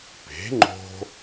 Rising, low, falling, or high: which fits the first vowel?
rising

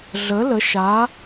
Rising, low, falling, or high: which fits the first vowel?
rising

